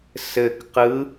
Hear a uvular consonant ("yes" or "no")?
yes